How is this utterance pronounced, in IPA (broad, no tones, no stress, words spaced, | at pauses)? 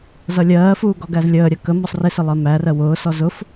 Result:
zʌlʲɜːfuː ɡɔɡæzlʲəːɾʲɜ kə mɔsˤrɪsɪ lˠɜmærɜ wʊːsɔ zʊf